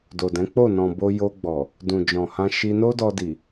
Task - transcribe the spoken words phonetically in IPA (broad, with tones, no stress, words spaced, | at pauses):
do˨dɛ̃˨˦k͡po˦˨ nɔ̃˨bo˧ jo˧ɡ͡bɔ˨ | dũ˨d͡ʒɔ̃˨hã˧ ʃi˧no˦dɔ˧ di˨